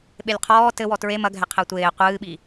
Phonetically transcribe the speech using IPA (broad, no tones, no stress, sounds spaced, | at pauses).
ɓ e lʲ qʰ ɔː t ɘ w ɔ t ɹ e m ɐ ɡʱ ɛ qʰ ɛ tʷ eː qʷ ɨː ɓ i